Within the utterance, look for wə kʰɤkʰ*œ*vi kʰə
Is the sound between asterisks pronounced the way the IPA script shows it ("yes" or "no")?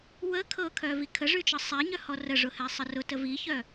yes